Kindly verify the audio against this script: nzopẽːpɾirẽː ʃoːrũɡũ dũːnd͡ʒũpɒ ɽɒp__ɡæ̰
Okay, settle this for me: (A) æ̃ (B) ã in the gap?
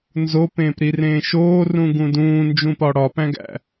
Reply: A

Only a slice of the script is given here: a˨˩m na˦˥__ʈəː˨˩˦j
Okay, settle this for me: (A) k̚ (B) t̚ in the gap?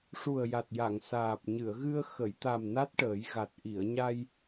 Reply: B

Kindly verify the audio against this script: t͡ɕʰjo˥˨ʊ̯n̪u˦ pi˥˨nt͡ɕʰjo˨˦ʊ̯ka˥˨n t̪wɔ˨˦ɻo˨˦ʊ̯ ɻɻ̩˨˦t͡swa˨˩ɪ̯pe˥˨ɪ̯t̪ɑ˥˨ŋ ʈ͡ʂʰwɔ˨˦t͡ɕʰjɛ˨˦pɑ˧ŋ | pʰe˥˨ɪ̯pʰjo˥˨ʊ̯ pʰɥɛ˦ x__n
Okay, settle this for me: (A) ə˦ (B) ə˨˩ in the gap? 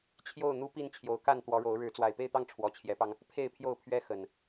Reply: B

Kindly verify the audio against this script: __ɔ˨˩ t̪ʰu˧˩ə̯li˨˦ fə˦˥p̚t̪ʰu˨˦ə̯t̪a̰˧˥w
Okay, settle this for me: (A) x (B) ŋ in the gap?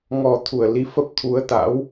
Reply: B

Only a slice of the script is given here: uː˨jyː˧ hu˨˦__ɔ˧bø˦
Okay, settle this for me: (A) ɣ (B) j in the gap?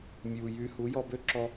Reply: B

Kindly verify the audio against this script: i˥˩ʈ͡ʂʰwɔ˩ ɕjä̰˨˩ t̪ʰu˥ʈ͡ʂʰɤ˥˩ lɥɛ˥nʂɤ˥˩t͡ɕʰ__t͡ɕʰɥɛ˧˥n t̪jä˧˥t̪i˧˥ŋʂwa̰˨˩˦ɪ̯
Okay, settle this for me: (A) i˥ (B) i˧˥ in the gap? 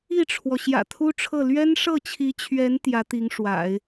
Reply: B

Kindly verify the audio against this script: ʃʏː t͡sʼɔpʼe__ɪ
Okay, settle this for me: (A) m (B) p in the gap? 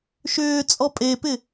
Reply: B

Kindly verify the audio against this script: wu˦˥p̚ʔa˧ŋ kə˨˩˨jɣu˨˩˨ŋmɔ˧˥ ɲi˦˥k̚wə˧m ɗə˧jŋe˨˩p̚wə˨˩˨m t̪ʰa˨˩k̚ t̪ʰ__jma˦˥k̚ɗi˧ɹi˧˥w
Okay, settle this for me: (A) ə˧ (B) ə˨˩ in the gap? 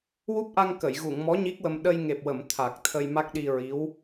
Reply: A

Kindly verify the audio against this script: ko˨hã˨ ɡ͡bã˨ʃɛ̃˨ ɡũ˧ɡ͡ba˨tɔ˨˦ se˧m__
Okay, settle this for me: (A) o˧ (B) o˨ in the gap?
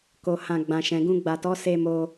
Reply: A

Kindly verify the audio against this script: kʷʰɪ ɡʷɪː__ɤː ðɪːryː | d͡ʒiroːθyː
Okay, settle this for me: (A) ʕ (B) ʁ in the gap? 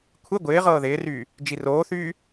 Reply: B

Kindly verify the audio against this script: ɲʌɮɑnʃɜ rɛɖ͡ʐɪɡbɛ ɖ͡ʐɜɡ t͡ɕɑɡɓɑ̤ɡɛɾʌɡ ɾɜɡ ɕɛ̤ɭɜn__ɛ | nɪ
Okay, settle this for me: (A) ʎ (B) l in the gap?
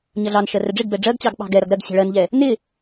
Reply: A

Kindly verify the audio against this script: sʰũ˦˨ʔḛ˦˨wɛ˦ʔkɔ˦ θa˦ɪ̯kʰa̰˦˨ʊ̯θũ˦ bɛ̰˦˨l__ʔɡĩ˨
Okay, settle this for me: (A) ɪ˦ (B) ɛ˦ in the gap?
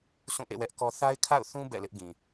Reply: A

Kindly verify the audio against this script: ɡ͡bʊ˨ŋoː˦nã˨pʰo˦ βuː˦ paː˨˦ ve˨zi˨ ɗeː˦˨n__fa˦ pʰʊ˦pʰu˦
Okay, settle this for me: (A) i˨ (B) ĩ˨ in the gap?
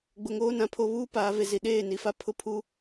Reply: A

